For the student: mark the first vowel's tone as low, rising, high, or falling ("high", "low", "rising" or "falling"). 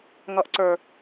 low